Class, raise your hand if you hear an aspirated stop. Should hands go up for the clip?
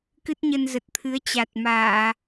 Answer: yes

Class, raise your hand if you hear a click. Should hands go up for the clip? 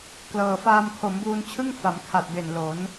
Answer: no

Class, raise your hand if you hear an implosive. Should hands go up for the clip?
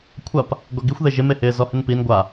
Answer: no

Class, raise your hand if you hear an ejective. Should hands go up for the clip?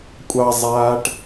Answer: yes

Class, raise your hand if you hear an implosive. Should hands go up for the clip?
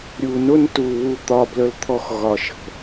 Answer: no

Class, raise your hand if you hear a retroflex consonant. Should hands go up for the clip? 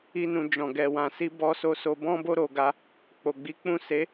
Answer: no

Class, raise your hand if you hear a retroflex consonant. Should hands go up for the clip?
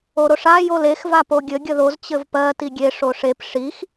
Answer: yes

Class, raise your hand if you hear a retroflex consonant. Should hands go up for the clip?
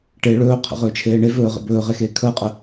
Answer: yes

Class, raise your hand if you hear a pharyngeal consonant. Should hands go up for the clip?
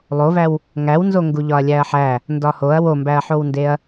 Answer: yes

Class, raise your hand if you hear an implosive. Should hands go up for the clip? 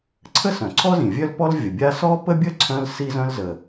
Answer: no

